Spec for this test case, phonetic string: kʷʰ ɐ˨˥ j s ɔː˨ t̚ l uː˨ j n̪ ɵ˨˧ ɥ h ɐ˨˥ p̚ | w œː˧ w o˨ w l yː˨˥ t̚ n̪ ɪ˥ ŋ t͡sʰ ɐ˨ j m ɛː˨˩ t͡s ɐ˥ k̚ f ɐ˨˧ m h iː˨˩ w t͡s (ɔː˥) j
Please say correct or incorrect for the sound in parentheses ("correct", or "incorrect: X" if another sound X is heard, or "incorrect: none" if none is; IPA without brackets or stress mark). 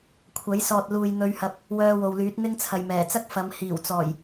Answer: incorrect: ɔː˨˩